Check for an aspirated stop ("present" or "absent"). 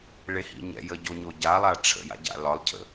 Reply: present